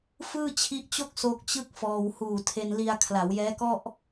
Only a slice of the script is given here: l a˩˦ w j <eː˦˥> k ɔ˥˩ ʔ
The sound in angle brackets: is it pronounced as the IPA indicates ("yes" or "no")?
no